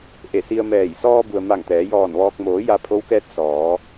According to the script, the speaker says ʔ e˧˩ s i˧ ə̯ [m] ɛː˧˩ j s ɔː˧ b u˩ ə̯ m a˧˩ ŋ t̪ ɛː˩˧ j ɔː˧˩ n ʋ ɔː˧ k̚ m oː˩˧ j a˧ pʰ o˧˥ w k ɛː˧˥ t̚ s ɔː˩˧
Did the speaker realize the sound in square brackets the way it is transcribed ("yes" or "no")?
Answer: yes